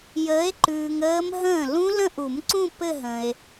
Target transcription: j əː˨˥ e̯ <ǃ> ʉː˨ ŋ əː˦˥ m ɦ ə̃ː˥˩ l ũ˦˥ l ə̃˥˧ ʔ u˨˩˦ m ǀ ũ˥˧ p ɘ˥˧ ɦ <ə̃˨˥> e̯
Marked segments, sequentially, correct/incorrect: correct, incorrect

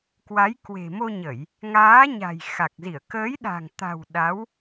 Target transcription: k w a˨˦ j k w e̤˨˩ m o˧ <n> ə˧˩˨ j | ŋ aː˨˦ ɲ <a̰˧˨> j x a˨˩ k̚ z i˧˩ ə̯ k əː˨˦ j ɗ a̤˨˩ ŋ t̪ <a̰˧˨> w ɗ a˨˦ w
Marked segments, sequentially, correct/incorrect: incorrect, incorrect, incorrect

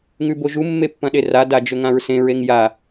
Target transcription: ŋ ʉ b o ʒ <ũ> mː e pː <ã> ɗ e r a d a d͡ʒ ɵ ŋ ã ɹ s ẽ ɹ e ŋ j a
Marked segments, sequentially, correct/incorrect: incorrect, incorrect

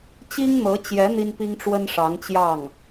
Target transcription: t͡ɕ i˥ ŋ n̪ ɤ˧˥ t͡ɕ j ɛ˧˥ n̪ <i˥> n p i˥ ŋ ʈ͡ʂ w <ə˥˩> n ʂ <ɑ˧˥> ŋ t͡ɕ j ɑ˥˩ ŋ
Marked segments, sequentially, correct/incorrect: correct, incorrect, correct

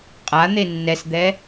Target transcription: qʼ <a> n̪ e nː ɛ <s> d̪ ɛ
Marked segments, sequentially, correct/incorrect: correct, correct

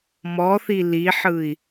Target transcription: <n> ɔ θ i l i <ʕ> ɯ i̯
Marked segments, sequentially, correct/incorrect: incorrect, incorrect

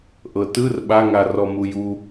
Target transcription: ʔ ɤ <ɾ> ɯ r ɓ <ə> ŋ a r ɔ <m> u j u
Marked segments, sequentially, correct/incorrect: incorrect, incorrect, correct

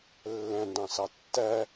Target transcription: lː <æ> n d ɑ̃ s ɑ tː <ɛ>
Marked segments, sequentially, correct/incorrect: incorrect, incorrect

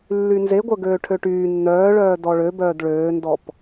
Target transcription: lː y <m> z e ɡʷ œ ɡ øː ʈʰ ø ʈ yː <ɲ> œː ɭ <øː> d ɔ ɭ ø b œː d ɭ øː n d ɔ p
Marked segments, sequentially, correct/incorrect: incorrect, incorrect, incorrect

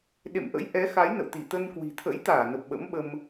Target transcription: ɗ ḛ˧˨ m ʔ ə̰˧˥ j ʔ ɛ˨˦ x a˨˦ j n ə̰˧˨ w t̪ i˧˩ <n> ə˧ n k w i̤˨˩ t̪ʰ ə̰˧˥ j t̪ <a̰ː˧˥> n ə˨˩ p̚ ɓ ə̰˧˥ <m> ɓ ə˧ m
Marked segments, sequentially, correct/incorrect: incorrect, incorrect, correct

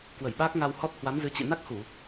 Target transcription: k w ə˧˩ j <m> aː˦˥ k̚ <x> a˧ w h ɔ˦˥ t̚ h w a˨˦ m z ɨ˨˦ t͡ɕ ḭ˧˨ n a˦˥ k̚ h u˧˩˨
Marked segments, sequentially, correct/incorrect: incorrect, incorrect

